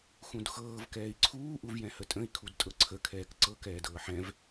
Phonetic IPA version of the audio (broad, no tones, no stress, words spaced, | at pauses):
xũdxɤːv kɛːi̯ǀʰuː ʔuvjɛ̃hətʼə̃i̯ kʰudtʼɤǀʰə kʰɛːkǀɤ kɛːdɤːħɛ̃v